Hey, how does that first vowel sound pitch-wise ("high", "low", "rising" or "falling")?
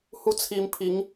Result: high